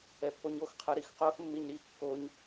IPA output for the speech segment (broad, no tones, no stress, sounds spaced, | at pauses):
ɛ pː o ɲ o x qʰ ɯ ɾ i x q o x mː i ɲ ɾ i kː o ɲ